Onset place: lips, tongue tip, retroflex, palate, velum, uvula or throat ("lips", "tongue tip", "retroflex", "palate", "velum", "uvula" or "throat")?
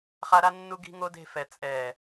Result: uvula